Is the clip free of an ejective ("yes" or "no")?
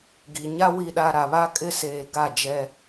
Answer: no